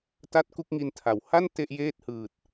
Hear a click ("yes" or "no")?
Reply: no